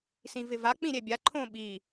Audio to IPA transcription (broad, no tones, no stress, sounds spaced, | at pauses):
s ĩ v ɪ v a k͡p ĩ ɾʲ ɛ bʲ a ǃʰ õ ɓ i